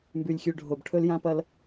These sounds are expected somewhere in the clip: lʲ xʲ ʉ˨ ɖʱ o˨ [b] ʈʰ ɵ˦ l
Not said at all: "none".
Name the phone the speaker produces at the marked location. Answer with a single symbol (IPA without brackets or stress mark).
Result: b